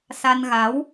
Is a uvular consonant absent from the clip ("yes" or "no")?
yes